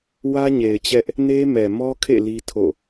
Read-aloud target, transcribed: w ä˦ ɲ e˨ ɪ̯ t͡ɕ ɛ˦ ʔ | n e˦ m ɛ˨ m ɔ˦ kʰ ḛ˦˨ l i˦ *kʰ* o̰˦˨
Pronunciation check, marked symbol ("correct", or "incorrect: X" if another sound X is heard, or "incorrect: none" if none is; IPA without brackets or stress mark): incorrect: tʰ